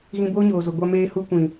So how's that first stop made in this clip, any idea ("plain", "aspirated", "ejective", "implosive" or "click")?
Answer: plain